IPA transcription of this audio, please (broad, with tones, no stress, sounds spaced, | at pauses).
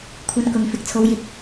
kʷʰ ɐ˧ n k ʊ˨ ŋ f ɪ˨ k̚ t͡sʰ o˨˧ w j ɪ˧ k̚